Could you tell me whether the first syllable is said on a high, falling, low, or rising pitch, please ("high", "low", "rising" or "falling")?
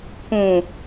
low